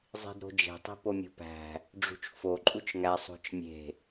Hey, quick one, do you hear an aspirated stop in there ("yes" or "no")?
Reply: no